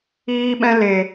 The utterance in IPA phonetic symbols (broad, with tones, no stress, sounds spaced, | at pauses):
iː˦ ɓ ɛ̃˦ l e˨